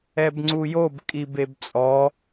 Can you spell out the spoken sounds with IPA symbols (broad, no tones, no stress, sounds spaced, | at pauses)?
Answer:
ɛ b ŋ͡ǀ u j o b kʼ i b e b t͡sʼ ɔ